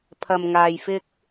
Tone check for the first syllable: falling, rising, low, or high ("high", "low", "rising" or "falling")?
low